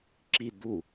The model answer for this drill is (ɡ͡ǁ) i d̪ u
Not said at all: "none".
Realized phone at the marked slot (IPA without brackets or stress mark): ǁ